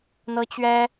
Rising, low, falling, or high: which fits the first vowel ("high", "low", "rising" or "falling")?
high